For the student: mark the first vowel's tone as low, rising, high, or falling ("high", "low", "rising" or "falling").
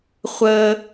high